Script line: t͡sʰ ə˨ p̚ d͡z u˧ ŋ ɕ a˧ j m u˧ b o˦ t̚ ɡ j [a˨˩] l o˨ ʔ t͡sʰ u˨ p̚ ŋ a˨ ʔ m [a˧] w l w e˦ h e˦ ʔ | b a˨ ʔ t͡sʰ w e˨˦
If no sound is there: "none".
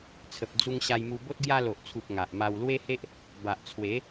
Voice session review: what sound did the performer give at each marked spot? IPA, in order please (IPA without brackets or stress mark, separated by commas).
a˧, a˧